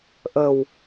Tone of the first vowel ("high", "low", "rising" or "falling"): low